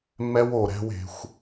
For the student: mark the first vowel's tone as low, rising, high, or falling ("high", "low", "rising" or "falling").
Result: high